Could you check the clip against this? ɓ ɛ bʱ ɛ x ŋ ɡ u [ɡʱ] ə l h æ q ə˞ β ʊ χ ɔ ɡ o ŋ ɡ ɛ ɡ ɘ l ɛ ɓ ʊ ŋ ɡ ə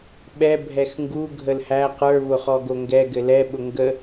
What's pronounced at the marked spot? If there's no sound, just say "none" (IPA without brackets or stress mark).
ɡʱ